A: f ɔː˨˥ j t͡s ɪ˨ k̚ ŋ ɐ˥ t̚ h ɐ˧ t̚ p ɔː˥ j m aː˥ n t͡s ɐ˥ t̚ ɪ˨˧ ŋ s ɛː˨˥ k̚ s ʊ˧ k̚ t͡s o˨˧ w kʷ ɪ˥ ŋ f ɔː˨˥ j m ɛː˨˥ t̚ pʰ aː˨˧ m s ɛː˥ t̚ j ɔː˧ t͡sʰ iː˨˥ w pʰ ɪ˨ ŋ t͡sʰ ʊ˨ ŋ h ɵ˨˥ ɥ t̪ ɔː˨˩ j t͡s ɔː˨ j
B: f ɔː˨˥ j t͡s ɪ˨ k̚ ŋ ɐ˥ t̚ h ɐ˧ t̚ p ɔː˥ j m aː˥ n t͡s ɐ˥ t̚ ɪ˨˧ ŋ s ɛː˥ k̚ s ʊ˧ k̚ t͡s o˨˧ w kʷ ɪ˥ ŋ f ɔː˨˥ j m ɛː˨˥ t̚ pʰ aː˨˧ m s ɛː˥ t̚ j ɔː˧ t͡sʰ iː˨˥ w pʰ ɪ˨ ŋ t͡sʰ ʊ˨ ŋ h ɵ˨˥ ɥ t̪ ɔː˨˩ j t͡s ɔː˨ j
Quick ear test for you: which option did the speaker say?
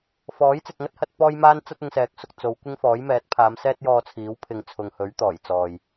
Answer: A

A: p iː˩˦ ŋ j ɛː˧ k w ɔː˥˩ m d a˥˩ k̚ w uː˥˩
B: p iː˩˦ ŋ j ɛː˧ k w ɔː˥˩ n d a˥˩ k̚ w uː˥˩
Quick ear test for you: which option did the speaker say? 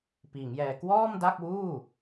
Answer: A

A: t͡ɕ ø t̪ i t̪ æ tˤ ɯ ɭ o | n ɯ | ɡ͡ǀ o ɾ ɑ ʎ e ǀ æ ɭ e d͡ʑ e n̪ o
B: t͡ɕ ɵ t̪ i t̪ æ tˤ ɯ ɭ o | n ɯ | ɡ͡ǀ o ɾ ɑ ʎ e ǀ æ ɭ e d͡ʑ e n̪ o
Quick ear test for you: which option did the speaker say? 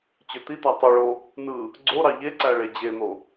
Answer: A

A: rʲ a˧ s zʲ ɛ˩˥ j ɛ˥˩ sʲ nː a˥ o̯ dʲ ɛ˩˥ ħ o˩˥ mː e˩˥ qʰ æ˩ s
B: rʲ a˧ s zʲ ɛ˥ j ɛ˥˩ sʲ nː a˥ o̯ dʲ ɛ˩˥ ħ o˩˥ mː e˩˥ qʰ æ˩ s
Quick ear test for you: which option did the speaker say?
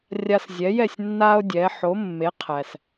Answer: A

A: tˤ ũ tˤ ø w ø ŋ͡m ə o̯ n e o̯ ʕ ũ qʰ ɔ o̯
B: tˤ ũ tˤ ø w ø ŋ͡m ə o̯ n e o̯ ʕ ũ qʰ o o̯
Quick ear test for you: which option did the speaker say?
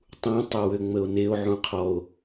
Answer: A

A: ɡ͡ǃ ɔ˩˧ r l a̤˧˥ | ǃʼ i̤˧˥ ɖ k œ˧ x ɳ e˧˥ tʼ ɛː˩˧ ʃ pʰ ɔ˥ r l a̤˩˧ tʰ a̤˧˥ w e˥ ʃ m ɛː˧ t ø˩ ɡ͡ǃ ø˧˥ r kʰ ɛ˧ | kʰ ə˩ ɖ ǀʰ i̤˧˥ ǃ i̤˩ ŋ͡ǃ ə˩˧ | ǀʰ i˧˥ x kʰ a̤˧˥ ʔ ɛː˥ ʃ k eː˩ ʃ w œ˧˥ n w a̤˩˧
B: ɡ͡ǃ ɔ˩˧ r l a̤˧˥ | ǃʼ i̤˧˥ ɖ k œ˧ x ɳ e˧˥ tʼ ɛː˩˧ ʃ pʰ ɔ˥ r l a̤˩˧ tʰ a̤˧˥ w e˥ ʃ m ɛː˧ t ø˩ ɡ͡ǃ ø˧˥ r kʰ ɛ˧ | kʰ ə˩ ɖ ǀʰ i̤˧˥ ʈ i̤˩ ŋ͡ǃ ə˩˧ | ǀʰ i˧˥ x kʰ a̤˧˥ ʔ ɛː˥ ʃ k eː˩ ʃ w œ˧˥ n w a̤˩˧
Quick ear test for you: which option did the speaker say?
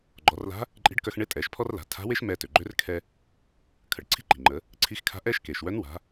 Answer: A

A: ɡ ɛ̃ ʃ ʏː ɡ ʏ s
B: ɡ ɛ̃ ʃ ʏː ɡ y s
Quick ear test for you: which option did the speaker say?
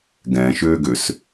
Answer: A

